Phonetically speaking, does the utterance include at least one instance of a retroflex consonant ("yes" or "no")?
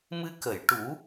yes